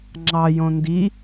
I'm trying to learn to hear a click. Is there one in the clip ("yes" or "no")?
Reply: yes